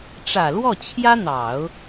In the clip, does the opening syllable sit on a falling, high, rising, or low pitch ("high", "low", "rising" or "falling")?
low